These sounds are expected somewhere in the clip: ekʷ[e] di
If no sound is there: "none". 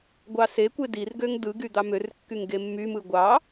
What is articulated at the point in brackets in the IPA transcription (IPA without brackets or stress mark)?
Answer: e